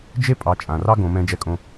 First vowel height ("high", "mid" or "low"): mid